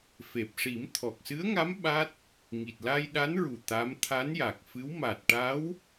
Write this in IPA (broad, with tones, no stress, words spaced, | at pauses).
fe˨˩p̚ʂi˨˩˦m t̪ʰɔ˨˩k̚sɨ˧˥ə̯ŋa˧˥m ɓa˦˥t̚ | ŋi˨˩t̚la˧jɗa˧˥nɹu˨˩ t̪a˧˥m t̪ʰa˧˥nja˨˩k̚fɨ˧˥w ma˨˩t̚ʈa˧˥w